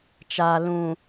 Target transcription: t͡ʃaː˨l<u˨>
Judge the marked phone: incorrect: ũ˨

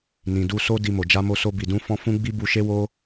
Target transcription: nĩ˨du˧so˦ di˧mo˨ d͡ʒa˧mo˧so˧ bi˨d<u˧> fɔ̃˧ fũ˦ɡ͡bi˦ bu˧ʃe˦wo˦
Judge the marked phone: incorrect: ũ˧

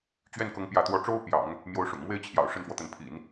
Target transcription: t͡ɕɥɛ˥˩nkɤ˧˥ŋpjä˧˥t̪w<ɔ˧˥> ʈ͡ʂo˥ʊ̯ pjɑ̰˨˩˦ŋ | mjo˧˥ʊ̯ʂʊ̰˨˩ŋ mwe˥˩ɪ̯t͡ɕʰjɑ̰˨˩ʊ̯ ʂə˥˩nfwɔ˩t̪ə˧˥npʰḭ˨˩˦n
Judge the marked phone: correct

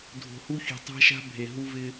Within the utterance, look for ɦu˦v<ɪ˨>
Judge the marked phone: incorrect: ɪ˦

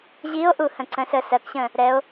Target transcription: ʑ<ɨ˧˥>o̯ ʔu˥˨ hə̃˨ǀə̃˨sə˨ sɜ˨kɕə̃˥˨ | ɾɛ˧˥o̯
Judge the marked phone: incorrect: i˧˥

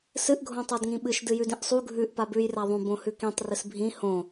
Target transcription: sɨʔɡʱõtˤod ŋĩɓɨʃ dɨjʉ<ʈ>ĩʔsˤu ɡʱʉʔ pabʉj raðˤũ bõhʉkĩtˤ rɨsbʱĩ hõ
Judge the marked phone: incorrect: d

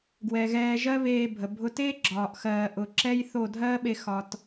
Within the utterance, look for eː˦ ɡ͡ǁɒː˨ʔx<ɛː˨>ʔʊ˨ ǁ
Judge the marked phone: incorrect: ɜː˨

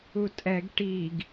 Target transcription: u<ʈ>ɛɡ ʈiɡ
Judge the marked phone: incorrect: tʼ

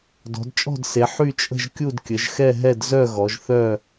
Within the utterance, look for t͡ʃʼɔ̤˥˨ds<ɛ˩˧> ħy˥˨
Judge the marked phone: incorrect: e˩˧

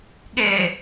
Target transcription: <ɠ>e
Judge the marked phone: correct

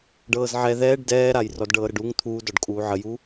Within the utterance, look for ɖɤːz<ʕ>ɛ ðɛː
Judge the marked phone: correct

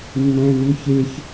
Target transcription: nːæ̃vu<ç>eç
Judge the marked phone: correct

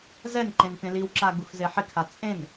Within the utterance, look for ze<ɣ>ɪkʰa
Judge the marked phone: incorrect: ħ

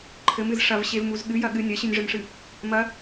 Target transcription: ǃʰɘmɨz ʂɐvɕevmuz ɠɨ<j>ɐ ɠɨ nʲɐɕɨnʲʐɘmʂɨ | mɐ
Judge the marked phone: correct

